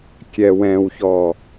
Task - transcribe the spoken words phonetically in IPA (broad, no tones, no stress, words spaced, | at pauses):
kʲɛwɛ̃wçɔ